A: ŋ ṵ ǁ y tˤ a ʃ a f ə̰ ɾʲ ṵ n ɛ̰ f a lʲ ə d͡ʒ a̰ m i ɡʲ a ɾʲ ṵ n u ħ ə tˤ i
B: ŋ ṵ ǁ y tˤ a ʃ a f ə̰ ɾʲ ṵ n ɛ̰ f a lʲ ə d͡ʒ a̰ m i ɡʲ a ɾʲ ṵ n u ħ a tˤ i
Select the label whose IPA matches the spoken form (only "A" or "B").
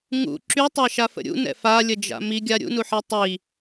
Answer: B